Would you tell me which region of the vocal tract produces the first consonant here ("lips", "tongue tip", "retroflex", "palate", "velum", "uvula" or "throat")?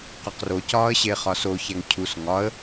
uvula